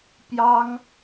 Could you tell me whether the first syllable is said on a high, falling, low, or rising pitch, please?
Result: high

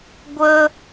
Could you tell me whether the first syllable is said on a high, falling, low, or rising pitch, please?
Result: high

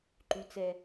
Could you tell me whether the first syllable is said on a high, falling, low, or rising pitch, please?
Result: low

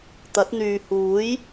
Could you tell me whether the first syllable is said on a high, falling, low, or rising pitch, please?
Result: rising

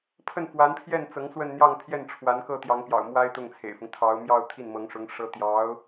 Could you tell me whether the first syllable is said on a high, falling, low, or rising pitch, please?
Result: falling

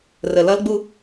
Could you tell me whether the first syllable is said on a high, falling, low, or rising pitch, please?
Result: low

